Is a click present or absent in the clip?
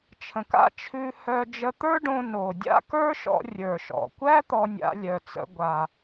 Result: absent